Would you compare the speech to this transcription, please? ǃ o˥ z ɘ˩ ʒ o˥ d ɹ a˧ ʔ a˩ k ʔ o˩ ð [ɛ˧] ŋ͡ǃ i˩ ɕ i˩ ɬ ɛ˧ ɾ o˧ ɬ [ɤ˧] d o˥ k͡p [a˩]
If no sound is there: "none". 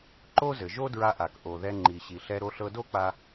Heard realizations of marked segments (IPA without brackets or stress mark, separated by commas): ɛ˧, ɤ˧, a˧